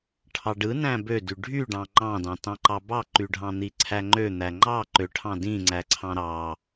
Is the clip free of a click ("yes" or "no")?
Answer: no